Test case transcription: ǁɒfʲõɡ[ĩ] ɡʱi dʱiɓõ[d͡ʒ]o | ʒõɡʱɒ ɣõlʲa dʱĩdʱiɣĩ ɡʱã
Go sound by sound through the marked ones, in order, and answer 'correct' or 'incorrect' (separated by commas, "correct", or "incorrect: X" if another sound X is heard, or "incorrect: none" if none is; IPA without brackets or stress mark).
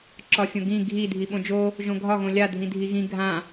correct, correct